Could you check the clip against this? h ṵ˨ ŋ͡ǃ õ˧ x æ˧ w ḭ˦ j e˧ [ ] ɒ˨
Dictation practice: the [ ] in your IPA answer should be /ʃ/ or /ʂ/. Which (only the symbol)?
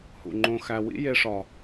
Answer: ʂ